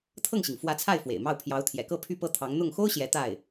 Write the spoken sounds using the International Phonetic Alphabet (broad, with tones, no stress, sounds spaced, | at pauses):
t̪ʰ ɤ˥˩ ŋ ɕ i˩ ŋ f w ä˧˥ t͡sʰ a˥˩ ɪ̯ f w ḛ˨˩ ɪ̯ m ɑ˥˩ ʊ̯ pʰ j ɑ˧˥ ʊ̯ t̪ʰ j ɛ̰˨˩ k ɤ˥˧ pʰ y˥˧ p ɤ˥˩ t̪ʰ ɑ˧˥ ŋ n̪ ʊ˥˩ ŋ x o˥ ʊ̯ ɕ j ɛ˧˥ t̪ a˥˩ ɪ̯